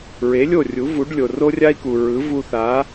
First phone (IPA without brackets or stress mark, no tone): ɹ